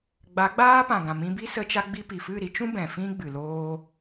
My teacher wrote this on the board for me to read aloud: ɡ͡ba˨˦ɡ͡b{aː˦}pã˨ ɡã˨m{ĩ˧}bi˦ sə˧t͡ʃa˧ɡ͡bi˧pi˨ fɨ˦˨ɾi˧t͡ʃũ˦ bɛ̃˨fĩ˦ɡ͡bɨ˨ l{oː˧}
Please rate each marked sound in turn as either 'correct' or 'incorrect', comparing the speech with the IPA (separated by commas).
correct, correct, correct